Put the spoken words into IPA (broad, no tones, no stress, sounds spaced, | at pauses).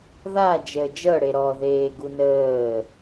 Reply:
ð a d͡ʒ əː d͡ʒ ɤ ɽ e ɾ ɔ ð eː ɡ u n əː